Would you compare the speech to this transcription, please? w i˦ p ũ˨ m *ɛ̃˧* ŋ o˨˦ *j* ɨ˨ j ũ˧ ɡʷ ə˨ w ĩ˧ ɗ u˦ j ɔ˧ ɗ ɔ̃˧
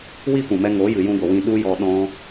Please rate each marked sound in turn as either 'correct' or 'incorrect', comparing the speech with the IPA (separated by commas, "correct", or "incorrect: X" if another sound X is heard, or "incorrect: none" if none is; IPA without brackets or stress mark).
incorrect: ɛ˧, correct